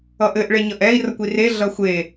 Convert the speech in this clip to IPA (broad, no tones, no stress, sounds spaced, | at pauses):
ʌ ʔ ɘ ʔ ɭ e ɲ ʌ ʔ ɛ i̯ r ʌ kʷ i r e ɮ ʌ xʷ e